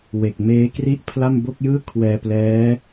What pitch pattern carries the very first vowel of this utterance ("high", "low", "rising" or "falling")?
low